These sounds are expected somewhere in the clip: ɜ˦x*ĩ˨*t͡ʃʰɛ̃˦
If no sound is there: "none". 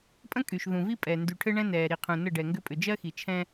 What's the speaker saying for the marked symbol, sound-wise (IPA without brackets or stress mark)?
i˨